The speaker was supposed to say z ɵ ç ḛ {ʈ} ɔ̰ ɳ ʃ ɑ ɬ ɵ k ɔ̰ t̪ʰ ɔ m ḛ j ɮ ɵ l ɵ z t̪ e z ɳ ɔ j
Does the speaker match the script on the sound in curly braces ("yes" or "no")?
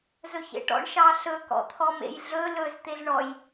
yes